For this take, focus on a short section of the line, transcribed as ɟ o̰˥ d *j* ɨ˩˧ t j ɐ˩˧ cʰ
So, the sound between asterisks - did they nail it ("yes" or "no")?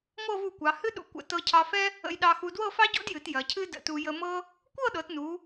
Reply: yes